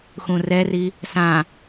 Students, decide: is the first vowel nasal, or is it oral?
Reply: nasal